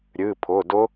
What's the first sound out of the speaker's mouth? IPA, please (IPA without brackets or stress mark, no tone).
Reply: ɾʲ